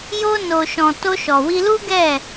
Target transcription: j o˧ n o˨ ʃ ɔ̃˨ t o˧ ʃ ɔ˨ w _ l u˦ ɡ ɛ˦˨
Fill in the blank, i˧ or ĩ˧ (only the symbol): i˧